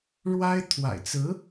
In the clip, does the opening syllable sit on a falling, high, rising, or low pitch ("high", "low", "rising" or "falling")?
high